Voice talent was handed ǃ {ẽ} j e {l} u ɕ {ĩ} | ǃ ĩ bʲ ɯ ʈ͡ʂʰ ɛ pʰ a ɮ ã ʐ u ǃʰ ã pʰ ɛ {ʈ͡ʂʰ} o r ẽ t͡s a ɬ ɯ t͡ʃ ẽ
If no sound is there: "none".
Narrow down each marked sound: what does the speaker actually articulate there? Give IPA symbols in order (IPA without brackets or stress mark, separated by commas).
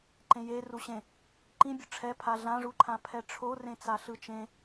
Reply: ẽ, r, ẽ, ʈ͡ʂʰ